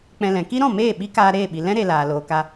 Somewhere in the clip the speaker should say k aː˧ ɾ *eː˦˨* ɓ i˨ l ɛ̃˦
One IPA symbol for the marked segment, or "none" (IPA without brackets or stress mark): eː˦˨